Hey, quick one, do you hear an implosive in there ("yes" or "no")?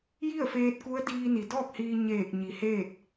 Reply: no